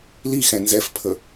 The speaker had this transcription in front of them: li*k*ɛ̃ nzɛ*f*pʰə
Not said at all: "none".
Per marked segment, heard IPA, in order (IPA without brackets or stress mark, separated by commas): x, f